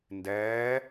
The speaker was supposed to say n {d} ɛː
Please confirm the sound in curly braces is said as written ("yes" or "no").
yes